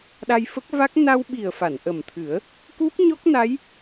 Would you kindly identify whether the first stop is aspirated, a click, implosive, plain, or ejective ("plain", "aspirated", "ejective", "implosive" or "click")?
implosive